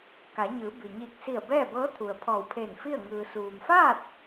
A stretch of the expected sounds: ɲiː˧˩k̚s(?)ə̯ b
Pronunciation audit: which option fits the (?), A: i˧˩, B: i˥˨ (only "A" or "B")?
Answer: A